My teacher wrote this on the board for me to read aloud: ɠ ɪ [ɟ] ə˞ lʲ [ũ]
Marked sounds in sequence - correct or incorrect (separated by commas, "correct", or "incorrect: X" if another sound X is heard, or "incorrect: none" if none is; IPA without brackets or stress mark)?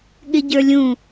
correct, correct